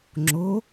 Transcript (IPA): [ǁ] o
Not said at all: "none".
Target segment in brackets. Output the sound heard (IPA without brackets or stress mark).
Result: ŋ͡ǁ